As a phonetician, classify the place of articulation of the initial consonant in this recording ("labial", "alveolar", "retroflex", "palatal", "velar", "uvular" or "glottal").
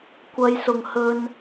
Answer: velar